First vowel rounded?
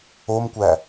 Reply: yes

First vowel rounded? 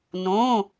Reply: yes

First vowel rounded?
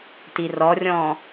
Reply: no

